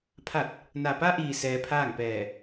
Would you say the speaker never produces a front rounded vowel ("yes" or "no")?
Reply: yes